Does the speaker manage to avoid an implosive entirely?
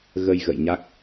yes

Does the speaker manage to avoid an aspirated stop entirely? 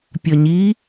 yes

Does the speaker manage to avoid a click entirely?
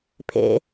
yes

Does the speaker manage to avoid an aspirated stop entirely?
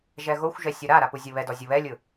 yes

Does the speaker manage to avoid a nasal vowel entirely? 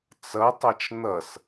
yes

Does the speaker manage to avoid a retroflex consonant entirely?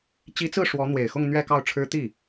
no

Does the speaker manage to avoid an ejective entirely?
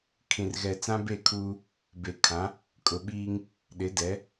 no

